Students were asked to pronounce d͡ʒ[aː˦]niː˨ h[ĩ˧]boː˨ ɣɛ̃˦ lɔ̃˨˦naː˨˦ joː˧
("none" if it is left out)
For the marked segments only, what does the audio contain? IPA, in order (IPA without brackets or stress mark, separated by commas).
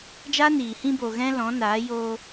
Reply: aː˦, ĩ˧